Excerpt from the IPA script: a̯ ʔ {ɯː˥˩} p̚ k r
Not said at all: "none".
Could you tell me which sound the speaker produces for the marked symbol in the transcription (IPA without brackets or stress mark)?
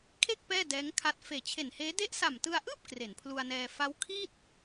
ɯː˥˩